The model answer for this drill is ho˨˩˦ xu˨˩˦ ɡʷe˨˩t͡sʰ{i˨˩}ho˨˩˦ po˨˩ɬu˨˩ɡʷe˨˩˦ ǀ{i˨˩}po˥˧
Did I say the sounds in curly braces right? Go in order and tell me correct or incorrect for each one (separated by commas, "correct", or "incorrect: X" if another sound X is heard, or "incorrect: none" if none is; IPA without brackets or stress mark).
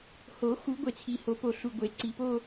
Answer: correct, correct